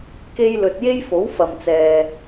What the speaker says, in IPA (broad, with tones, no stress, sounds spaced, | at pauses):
k e˥ j l ɵ˧ t̚ j e˥ j f o˨˥ w f ɐ˨ m t͡s ɛː˨